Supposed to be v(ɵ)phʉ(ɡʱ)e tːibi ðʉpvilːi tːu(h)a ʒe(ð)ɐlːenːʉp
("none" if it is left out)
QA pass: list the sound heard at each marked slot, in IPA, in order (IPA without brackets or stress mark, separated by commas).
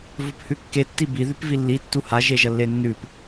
ɵ, kː, h, ʒ